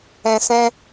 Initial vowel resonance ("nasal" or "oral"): nasal